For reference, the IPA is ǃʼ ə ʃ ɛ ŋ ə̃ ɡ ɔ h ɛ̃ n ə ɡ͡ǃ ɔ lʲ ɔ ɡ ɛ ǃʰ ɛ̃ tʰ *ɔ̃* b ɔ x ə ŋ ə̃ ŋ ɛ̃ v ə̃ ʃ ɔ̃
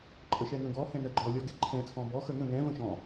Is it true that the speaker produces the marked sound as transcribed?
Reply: yes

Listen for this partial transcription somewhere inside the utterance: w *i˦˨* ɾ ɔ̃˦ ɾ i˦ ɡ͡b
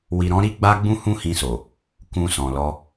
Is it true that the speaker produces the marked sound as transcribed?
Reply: no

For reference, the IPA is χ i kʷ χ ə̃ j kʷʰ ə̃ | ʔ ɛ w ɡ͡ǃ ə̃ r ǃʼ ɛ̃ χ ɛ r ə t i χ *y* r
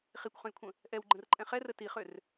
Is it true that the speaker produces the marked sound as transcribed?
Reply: no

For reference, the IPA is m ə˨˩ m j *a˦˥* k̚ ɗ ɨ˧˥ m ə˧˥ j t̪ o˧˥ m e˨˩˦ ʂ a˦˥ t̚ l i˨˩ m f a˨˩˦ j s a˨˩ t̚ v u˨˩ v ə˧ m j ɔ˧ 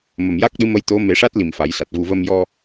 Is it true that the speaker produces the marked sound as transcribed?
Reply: yes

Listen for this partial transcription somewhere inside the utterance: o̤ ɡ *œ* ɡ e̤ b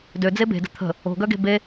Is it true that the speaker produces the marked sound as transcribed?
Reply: yes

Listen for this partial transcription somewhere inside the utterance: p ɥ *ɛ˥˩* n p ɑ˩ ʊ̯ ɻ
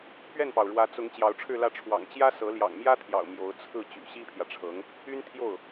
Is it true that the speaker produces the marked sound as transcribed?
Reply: yes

